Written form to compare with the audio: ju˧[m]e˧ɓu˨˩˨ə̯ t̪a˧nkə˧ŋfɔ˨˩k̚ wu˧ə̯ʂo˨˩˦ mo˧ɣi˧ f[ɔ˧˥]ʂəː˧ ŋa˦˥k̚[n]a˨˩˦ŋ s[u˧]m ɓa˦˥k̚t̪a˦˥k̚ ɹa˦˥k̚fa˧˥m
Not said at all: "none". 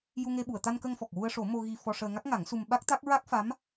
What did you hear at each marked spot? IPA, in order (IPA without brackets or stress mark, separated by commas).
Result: ŋ, ɔ˧, ŋ, u˧